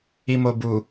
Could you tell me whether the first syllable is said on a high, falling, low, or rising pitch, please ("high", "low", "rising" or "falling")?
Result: low